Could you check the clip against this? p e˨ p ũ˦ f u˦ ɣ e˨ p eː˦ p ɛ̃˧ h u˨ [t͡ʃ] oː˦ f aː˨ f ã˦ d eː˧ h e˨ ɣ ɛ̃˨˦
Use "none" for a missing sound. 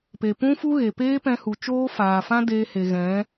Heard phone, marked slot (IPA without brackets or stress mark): t͡ʃ